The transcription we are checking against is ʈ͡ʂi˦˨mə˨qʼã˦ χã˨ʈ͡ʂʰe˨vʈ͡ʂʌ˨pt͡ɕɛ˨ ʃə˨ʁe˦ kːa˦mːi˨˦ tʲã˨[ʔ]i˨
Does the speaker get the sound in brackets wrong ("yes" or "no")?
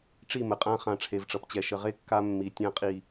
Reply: yes